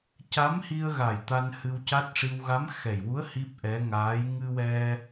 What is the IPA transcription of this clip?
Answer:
ca˧˥mhi˧ə̯ɣa˨˩j t̪a˧nhɨ˧wca˦˥t̚ʂi˧w ɣa˧˥mxɛ˨˩jwu˧˥ə̯ hi˦˥p̚ʔɛ˧˥ ŋaː˧˥j ŋɨ˧wɛ˧

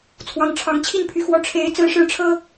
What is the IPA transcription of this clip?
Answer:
t͡sʰwɑ˨˦ŋʈ͡ʂʰɑ˨˦ŋ t͡ɕʰi˥˨npʰy˨˩xwɔ˨˦ ʈ͡ʂʰe˨˦ɪ̯ t͡sɹ̩˦ʂɻ̩˥˨ʈ͡ʂʰɤ˦

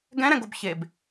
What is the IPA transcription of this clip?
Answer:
ɡɛ̃ɾɛ̃ɡob çeb

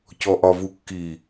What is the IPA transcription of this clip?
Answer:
cɔʔɒvukːi

